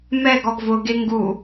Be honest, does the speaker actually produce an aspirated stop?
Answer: no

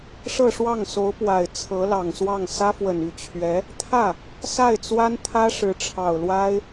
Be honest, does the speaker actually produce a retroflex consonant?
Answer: yes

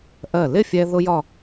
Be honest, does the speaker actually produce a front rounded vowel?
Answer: no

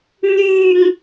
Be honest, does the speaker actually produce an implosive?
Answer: no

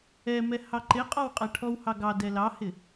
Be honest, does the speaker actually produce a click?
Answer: yes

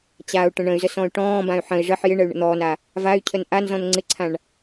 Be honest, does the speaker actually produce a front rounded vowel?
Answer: yes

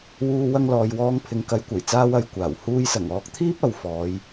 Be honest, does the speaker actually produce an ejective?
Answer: no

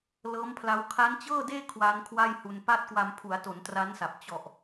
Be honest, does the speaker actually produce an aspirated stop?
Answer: yes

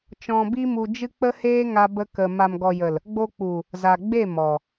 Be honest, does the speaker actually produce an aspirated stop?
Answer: no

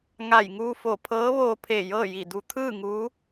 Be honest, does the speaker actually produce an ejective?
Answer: no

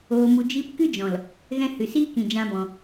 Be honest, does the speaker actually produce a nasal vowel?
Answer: yes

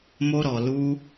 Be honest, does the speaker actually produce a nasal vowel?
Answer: no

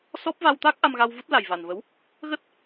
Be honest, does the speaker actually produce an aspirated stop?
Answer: no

